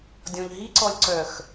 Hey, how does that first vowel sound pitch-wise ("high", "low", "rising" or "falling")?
low